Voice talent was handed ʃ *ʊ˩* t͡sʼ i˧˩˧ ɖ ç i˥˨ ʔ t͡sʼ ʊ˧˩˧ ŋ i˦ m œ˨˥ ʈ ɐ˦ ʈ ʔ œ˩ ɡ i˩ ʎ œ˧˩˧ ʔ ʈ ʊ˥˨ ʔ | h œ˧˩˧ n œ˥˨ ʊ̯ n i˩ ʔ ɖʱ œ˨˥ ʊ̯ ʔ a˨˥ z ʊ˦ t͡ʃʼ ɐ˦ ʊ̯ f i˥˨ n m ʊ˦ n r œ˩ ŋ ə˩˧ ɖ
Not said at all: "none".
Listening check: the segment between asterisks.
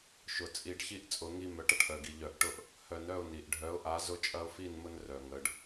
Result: ʊ˩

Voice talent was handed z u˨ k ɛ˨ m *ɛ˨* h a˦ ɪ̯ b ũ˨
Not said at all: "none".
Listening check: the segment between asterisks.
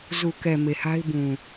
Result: e˨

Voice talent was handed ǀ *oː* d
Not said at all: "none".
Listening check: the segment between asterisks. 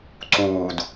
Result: uː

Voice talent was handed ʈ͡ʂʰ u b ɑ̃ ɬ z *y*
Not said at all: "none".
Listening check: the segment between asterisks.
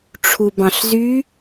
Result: y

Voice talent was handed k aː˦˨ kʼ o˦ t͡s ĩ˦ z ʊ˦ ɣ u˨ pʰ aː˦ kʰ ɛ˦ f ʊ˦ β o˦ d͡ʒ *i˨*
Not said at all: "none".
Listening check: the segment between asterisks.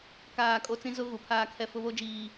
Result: iː˨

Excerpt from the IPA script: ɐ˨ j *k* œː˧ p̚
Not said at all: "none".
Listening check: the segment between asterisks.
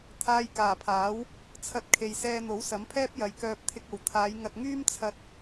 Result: k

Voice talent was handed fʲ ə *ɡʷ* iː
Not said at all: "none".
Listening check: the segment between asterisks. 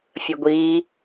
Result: ɡʷ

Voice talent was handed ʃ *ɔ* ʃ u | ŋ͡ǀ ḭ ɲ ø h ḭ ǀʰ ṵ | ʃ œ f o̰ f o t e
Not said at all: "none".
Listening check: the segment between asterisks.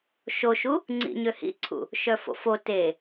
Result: o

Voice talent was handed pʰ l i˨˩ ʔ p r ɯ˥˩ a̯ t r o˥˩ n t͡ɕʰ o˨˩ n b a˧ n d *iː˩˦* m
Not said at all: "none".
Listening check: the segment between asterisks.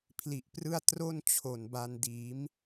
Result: iː˩˦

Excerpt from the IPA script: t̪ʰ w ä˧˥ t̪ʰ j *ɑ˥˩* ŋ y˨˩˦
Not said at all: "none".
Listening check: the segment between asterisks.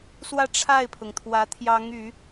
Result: ɑ˧˥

